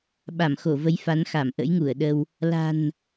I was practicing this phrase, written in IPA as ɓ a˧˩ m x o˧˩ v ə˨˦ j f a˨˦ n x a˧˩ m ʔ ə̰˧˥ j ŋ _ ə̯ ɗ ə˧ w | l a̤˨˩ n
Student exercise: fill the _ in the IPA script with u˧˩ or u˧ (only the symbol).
u˧˩